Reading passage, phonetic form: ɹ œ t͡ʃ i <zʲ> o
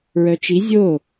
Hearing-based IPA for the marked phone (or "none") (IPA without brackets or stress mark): zʲ